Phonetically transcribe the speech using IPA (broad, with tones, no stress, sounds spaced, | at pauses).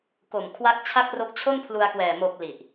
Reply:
k o˨˩ m kʰ w a˦˥ k̚ t͡ɕʰ a˦˥ k̚ r o˦˥ k̚ t͡ɕʰ o˥˩ n pʰ l u˧ a̯ k w ɛː˨˩ m o˨˩ k̚ l i˨˩ ʔ